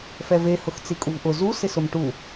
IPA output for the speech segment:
f ɛ v e h ʊ x t͡s i kʼ u v ʔ ʊ z u s ɪ s ʊ m ʈ u

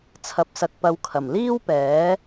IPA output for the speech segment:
t͡sʰ ɐ˧ p̚ s ɐ˧ k̚ p ɐ˧ w kʰ ɐ˨˩ m l iː˥ w p ɛː˨˥

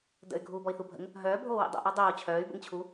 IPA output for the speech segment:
d ə̰ y̯ ɡʱ uː b ɔ i̯ θ u bʱ ə̰ ŋ | ɦ œː bʱ oː w ḭ dˤ o̰ ʔ ɔ dˤ oː t͡ɕʰ œː y̯ b ə̰ ŋ t͡ɕʰ u

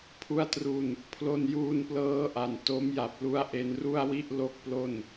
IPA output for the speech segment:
pʰ u˦˥ a̯ t r u˧ n | pʰ l o˧ n j uː˧ n p l ɤː˦˥ ʔ a˨˩ n t o˦˥ m j a˨˩ p̚ l u˦˥ a̯ ʔ e˧ n r u˥˩ a̯ w i˥˩ ʔ l o˥˩ k̚ p l o˥˩ n

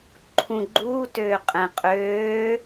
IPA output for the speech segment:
ǃʰ ũ ɡ͡ǃ uː t øː qʼ ɛ̃ qʼ øː

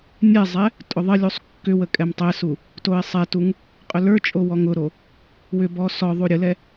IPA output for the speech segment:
nʲ ɛ zˤ ɛ | tʼ ʊ ðˤ ə lʲ u sˤ kː ʏ w ə kʼ ɛ m tˤ ɛ s u | t o ɪ̯ sˤ ɛ t u ŋ | qʼ ʏ l ə˞ t͡ʃʼ o w ɔ ŋ ʊ ɾ o | w ʏ b ɔ s ɔ ðˤ u ɾʲ ə l ɛ

